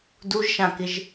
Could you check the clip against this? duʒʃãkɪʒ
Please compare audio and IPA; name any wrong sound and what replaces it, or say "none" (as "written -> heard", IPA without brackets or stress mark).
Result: none